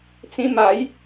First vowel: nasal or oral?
nasal